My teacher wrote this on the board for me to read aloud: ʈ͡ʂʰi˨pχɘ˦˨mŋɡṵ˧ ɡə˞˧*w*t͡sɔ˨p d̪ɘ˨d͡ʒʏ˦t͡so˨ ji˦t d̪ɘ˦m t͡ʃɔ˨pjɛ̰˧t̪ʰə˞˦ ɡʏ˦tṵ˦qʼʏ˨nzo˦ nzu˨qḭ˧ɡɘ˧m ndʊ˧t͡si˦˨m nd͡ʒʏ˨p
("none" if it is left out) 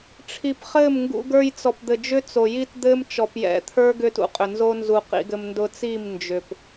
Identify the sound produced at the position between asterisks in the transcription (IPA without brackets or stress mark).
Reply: j